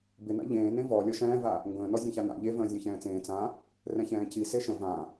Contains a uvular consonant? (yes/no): no